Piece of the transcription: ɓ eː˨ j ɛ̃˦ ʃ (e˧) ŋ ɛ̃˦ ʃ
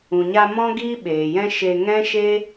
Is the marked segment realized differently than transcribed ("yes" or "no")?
no